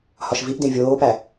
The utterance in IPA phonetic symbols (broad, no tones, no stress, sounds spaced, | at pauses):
h ɒ ʃ v i ʔ d ẽ vʲ oː p æ